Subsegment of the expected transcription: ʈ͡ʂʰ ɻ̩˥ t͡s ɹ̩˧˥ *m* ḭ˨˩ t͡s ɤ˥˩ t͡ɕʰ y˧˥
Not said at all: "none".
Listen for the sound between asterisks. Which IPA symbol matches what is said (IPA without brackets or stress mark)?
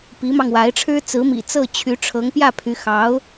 m